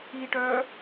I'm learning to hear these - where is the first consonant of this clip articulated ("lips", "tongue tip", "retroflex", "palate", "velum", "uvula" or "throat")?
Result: retroflex